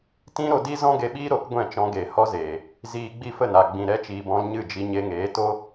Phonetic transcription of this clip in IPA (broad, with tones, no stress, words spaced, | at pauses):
tĩ˦ɾo˧di˦ zɔ̃˦ɡe˧ɓiː˦ ɾo˨kɡʷɛ̃˦˨t͡ʃɔ̃˧ ɡe˨ hɔ˦zeː˨ | ziː˧ ɡ͡bi˦fə˦˨na˨ ɡ͡bĩ˨ɾɛ˧t͡ʃiː˨bɔ̃˧l ɲɨ˦˨d͡ʒi˧ ɲe˧ŋeː˨˦ to˦